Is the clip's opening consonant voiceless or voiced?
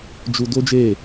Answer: voiced